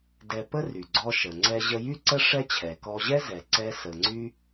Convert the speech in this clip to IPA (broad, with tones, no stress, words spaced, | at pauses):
dɛ˧pə˥ry˩ ɡ͡ǀɔ˧ʃə˩ ŋ͡ǀɛ˧ʑə˧jy˥ ǀə˥ ʂɛ˥t͡ɕʰɛ˩ kɔ˧ʑɛ˥zɛ˩ ǀɛ˧ sə˩ŋ͡ǀy˧